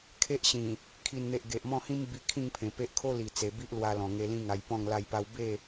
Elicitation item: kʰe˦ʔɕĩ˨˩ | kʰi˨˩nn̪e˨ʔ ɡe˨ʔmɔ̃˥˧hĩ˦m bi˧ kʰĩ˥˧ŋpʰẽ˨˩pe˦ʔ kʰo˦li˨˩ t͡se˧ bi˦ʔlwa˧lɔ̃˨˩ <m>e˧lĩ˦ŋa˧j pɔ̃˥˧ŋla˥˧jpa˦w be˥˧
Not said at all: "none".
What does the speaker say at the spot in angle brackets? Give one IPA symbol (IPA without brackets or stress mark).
ŋ